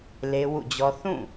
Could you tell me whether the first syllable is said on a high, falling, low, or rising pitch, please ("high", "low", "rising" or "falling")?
high